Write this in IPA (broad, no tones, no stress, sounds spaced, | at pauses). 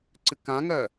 ǀ ɨ k ã ŋ ɜ